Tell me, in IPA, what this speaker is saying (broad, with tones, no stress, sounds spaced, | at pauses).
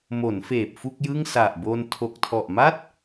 m o˩˦ n f eː˨˩ p̚ f u˥˩ k̚ j ɯ˥˩ ŋ s a˨˩ ʔ b o˧ n tʰ o˨˩ k̚ tʰ ɔ˨˩ ʔ m a˥˩ t̚